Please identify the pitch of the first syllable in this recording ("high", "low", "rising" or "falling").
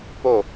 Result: falling